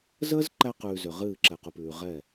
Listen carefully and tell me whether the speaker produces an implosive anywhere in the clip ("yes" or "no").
no